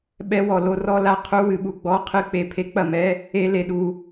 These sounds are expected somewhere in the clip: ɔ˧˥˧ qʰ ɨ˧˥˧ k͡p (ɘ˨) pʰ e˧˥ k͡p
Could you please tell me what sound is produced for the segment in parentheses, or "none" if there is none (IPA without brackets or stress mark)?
e˨